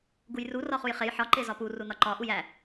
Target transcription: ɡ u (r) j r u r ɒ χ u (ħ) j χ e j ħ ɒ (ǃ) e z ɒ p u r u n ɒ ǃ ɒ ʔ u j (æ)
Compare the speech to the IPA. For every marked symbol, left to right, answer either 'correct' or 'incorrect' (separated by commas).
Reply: incorrect, incorrect, correct, correct